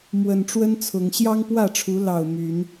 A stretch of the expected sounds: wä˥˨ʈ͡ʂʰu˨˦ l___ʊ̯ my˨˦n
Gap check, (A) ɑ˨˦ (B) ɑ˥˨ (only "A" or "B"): B